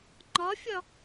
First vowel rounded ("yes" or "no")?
yes